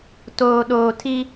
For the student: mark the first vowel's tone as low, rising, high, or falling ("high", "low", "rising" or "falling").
low